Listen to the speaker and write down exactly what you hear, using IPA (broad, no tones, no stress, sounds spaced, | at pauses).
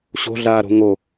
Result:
ɕ o̤ ɮ aː ɾ o̤ ŋ o